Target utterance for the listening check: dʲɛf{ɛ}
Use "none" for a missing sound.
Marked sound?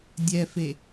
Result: e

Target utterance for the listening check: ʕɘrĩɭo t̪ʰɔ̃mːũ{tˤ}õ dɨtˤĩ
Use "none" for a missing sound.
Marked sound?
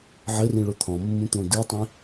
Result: t̪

